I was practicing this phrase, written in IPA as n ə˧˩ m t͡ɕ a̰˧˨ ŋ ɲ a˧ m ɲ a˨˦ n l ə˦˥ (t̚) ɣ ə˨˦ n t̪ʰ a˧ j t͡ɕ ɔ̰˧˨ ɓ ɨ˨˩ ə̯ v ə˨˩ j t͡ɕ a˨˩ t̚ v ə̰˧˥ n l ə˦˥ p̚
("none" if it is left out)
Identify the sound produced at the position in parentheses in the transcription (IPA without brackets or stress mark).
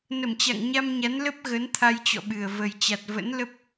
p̚